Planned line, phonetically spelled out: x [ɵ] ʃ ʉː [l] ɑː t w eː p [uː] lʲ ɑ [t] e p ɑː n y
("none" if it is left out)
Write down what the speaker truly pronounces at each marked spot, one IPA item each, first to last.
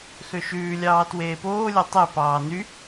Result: ø, lʲ, oː, tˤ

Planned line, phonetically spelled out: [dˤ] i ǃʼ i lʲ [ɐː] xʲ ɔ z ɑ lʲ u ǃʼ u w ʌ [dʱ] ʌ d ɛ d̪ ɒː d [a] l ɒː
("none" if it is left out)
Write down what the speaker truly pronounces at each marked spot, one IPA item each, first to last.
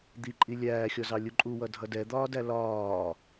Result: d̪, æː, dʱ, æ

